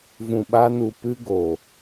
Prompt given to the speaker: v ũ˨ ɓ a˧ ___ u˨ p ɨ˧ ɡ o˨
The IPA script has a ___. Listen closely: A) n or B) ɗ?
A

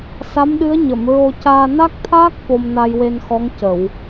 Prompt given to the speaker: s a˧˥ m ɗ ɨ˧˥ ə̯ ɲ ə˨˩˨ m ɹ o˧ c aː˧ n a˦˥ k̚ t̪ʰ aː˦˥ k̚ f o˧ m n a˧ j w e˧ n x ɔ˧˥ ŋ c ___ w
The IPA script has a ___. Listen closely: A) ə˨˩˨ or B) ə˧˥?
A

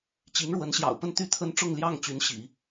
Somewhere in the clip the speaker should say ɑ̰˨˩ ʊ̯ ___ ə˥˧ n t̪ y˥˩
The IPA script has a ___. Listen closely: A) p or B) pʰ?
A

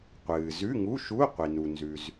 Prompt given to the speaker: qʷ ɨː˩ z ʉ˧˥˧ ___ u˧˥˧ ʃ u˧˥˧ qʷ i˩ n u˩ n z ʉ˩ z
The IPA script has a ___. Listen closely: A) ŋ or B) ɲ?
A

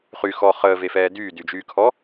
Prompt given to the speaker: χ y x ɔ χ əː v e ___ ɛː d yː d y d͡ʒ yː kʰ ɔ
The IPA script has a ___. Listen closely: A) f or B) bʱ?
A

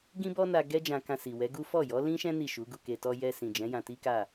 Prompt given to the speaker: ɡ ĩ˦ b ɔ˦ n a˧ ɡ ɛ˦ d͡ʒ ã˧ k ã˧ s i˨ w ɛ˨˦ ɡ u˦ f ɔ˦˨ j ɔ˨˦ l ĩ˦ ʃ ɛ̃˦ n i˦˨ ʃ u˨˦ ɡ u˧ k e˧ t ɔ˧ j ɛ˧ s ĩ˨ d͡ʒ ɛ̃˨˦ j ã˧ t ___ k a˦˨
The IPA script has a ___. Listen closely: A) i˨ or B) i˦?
B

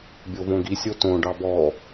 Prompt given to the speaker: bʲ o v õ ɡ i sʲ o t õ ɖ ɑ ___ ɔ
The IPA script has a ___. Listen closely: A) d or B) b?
B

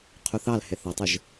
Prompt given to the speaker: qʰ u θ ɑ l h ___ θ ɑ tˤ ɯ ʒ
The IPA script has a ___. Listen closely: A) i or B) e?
B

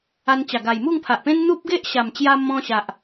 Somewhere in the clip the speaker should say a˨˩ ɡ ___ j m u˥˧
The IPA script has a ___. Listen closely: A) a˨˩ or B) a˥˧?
A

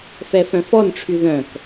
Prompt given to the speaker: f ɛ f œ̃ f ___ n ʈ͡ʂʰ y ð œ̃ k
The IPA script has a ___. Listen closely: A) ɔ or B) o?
A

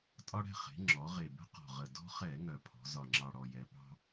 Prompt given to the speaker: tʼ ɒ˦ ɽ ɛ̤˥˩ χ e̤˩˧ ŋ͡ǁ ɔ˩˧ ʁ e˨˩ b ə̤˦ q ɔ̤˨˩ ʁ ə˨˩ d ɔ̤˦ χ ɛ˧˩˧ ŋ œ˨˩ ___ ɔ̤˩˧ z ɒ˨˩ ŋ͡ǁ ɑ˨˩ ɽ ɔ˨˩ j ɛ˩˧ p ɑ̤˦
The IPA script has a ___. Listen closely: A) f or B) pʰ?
B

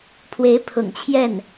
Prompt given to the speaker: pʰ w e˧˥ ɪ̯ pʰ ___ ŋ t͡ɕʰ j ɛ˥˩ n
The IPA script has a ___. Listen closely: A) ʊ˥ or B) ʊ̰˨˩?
B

